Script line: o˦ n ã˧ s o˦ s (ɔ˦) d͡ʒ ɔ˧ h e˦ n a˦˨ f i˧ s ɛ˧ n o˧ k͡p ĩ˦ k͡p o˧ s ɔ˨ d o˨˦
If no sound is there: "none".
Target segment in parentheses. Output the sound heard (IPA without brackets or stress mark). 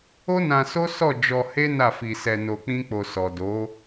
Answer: ɔ˦˨